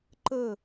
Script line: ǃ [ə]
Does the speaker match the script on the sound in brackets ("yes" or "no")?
yes